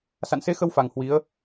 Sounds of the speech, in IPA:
s a̰˧˨ n s e˧ x ə˧ w f a˨˩ ŋ h w i˨˦ ə̯

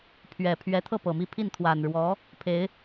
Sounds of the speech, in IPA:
pʰ ɥ ɛ˨˩ pʰ ɥ ɛ˧˥ t̪ʰ ɤ˥˩ p ɤ˨˩ m i˥˧ pʰ i˥˩ n t̪ʰ w a˨˩ n ɻ w ɔ˧˥ | pʰ e˧˥ ɪ̯

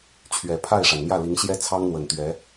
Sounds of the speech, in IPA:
t͡ɕʰ ɥ ɛ˨˩ pʰ a˥˩ ɪ̯ ʂ a˩ n n̪ j ä˥˩ l i˧˥ ŋ ɕ j ɛ˥ t͡sʰ ɑ˥ ŋ n̪ w ə˨˩ n t̪ ɥ ɛ˧˥

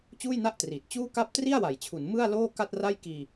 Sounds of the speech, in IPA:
t͡ɕ uː˥˩ j n a˥˩ ʔ t r iː˨˩ t̚ t͡ɕ uː˥˩ k a˥˩ p̚ t r i˥˩ a̯ w a˨˩ j t͡ɕʰ u˩˦ n m ɯ˥˩ a̯ l oː˥˩ k a˥˩ t̚ r a˥˩ j k iː˧

